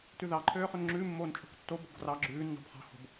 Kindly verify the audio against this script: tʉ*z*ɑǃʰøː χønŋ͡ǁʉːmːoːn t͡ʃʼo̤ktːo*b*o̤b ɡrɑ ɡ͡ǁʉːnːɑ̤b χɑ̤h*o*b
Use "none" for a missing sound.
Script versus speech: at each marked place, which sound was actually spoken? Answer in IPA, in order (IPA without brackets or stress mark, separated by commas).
ð, b, o̤